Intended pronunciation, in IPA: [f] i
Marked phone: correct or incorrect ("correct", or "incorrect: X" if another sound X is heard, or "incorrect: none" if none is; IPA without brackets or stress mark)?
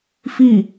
correct